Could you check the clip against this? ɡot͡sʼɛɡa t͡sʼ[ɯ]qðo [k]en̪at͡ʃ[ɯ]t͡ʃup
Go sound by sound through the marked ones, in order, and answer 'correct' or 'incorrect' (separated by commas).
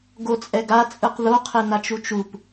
correct, incorrect, incorrect